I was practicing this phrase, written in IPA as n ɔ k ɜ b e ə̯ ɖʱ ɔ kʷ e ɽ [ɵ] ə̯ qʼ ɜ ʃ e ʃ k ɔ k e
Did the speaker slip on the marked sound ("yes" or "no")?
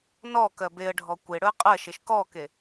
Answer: no